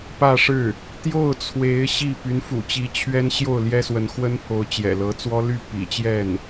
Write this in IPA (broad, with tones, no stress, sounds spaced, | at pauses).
p ä˥˧ ʂ ɻ̩˥˩ | t̪ j o˥˩ ʊ̯ t͡sʰ w e˧˥ ɪ̯ ɕ i˥˩ p y˧˥ n f ṵ˨˩ t͡ɕ i˧˥ t͡ɕʰ ɥ ɛ˥ n ɕ j o˥˩ ʊ̯ l j ɛ˥ s w ə˧˥ n x w ə˥ n pʰ o˧˥ ʊ̯ t͡ɕ j ɛ̰˨˩ l ɤ˧˥ t͡s w ɔ˥ l y˥˩ p ḭ˨˩ t͡ɕ j ɛ˥˩ n